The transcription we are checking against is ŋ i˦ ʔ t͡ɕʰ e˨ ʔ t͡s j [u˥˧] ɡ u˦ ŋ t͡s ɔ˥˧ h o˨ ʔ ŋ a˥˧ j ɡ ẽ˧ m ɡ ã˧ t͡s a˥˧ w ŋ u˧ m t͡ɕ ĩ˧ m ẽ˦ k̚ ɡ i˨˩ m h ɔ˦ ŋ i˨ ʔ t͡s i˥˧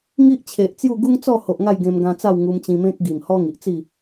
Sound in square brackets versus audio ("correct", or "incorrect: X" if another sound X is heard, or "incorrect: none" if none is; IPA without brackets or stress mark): correct